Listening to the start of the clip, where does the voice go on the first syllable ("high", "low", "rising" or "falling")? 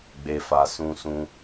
low